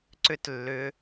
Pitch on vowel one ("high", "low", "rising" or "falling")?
high